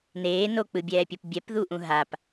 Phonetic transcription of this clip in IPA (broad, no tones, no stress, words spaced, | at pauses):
neː nok͡pɯbʲɛːpʲʌp bʲɛpðuʔũ ɦap